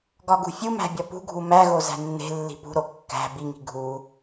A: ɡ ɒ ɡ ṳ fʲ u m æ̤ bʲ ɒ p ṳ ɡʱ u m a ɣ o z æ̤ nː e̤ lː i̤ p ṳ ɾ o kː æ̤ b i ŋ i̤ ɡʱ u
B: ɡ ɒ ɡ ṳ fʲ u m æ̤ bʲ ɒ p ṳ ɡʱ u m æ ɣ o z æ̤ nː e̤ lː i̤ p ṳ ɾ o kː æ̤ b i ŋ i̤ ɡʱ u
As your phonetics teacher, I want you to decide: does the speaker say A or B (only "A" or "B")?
B